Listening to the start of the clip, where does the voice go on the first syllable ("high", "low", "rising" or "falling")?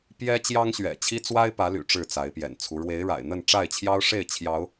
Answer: high